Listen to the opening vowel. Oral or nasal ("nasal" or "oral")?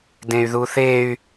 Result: nasal